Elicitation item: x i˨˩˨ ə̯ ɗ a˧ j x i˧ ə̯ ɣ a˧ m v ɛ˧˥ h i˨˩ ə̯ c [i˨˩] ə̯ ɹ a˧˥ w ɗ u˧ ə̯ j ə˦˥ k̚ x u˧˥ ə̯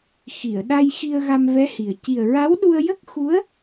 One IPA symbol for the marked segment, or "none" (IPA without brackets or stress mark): i˨˩